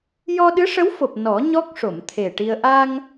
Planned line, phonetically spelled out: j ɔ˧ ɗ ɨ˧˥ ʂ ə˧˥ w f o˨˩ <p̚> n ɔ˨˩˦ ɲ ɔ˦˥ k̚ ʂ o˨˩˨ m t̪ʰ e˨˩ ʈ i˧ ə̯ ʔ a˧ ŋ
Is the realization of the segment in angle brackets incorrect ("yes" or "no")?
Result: no